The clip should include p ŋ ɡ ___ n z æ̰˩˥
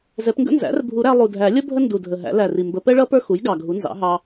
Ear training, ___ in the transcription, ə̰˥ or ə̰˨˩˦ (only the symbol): ə̰˥